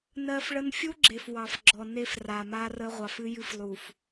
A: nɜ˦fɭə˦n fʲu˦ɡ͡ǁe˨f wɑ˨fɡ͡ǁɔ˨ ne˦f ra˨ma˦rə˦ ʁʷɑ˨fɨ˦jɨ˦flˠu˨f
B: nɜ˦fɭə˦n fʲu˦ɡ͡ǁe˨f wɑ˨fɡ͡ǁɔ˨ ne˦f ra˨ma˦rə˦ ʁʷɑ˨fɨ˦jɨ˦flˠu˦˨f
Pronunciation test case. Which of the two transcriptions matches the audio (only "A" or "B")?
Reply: A